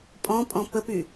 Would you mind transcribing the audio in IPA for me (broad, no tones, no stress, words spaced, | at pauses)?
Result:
pʼɔ̃pʼɔ̃ pəpy